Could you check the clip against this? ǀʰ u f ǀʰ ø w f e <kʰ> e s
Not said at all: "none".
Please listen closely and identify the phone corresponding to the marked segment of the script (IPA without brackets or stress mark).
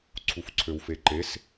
ǃ